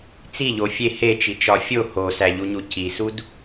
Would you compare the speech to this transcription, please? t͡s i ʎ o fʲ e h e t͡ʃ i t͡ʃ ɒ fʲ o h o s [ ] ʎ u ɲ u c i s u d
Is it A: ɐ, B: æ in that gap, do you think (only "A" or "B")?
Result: B